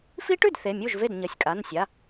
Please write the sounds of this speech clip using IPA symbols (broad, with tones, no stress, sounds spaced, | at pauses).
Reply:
f i˦˥ ʈ ʉ˥˩ d θ e˩˧˩ mʲ u˥˩ ʒ v e˥˩ d ɲ ɐ˩˧˩ sʲ kʼ a˩˧˩ n sʲ a˩˧˩